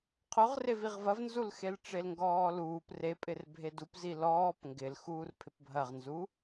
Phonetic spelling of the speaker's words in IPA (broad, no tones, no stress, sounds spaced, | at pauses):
qʰ ʊ ʁ r e v i ʁ v ɐ v n z u l x e l ʈ͡ʂ e l ŋ ɡ ɔː l uː p r e pʼ ɪ r bʱ e d u p z i l ɔː p ŋ ɡ ɪ l x uː r pʰ ɪ p bʱ ɐ ʁ n z u